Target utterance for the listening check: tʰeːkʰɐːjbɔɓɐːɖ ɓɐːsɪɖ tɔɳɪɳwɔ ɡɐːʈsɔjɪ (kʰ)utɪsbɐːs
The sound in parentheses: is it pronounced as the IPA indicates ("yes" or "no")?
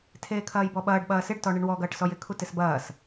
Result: yes